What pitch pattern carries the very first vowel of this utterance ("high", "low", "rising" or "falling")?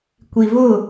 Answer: low